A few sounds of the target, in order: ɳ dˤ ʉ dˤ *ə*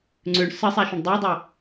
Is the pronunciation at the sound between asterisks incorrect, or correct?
correct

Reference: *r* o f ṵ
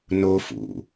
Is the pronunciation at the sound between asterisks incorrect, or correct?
incorrect: n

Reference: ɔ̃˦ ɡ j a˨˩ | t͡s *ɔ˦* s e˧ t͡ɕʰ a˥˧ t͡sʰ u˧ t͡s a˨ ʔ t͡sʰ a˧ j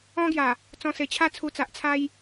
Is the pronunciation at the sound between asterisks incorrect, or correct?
incorrect: ɔ̃˦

